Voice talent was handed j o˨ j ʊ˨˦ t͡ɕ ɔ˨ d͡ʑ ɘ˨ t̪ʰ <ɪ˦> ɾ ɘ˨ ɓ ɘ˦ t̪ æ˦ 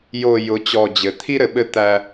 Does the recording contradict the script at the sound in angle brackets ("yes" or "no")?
yes